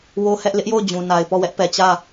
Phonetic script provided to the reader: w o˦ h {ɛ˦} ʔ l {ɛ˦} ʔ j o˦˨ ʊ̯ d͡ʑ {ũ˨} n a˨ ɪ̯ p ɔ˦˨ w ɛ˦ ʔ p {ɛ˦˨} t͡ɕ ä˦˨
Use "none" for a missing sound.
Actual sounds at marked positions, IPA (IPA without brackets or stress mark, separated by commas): ɛ˦, ɪ˦, ũ˨, ɛ˨